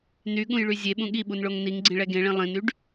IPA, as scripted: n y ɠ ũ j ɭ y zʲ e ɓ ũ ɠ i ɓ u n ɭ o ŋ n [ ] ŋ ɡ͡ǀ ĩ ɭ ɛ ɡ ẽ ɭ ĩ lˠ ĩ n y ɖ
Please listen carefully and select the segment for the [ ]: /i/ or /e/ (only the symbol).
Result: i